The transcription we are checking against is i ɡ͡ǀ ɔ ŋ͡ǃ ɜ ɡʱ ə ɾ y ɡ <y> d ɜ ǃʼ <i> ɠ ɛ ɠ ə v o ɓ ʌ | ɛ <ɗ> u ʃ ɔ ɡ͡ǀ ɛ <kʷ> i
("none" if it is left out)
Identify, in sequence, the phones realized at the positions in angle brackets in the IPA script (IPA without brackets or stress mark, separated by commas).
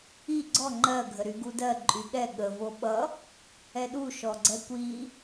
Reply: u, y, ɗ, kʷ